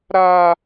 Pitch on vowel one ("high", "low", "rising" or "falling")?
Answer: high